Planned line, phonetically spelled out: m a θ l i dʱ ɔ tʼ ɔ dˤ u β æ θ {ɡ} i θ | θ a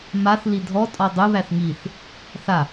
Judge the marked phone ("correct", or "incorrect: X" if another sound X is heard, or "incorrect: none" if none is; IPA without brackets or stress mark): incorrect: ŋ